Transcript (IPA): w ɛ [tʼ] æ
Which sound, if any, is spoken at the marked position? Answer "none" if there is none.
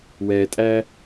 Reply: tʼ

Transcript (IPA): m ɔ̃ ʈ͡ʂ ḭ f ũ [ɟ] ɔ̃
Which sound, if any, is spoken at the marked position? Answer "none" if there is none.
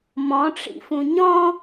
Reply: ɲ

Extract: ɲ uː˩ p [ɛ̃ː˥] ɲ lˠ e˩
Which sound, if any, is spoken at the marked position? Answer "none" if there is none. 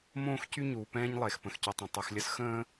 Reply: ɛ̃ː˥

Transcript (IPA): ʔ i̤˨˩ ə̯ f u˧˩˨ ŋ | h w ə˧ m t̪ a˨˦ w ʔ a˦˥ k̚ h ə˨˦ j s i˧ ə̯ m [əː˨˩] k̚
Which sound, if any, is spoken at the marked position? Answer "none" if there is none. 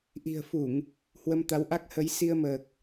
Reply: əː˨˩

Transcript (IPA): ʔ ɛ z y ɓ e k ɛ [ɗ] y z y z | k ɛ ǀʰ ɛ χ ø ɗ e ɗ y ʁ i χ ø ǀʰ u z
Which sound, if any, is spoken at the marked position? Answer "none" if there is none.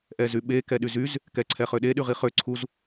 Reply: ɗ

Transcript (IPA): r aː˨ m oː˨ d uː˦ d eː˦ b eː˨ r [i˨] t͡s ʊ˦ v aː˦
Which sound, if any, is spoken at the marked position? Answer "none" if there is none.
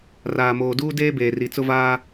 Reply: i˨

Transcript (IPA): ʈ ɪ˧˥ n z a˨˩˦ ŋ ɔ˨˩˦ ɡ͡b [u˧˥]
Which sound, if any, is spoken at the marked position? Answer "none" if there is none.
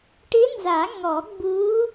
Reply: u˧˥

